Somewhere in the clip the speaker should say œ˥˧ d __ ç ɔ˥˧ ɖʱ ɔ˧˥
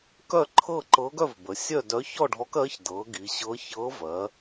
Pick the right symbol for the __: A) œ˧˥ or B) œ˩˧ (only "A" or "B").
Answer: A